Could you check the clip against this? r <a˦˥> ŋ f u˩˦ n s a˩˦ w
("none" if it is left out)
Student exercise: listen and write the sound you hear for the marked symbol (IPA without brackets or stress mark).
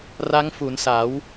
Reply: a˦˥